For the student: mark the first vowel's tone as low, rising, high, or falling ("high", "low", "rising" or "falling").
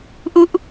falling